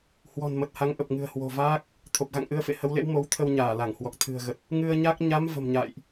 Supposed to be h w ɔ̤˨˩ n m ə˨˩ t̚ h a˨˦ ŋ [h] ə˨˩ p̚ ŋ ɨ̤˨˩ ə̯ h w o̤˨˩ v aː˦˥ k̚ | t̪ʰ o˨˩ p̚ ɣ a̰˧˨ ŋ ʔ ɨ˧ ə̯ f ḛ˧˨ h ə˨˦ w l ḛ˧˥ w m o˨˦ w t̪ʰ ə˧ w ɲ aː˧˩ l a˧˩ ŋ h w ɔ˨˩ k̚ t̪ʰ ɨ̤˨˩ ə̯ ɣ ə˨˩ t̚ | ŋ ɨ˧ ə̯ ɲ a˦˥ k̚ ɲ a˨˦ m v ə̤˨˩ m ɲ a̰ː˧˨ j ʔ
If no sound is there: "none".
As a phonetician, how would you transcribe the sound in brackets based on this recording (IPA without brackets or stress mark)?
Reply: ʔ